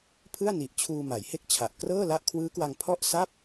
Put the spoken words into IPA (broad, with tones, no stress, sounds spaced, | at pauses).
pʰ ɯ˥˩ a̯ n i˨˩ ʔ t͡ɕʰ uː˧ m a˩˦ j h e˥˩ k̚ t͡ɕʰ a˨˩ ʔ k r ɤː˥˩ l a˦˥ ʔ kʰ w ɯː˦˥ k w a˧ ŋ pʰ ɔ˥˩ ʔ s a˥˩ p̚